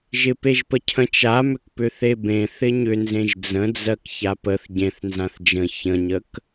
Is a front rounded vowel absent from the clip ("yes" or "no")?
no